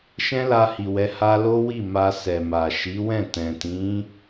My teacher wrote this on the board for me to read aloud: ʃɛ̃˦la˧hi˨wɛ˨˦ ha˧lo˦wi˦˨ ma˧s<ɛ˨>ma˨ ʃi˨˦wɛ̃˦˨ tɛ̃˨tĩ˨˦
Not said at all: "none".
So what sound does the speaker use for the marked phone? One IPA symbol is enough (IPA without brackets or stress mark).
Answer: ɛ˨